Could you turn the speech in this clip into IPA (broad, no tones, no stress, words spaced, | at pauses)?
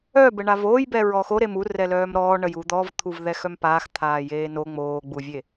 œbə ɳavoːjbɛ ɹɔxo ɾemu rɛlœːmɾɔː ɳəjud̪ɔv t̪ʰuvðɛxœmpaːx t̪ʰaːjeːno ŋ͡moːɡ͡buvʲe